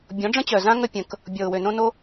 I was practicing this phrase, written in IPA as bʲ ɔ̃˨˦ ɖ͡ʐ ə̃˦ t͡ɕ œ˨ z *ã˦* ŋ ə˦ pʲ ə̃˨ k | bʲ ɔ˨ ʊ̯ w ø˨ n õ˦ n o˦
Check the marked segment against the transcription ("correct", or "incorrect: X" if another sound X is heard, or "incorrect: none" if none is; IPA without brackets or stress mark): correct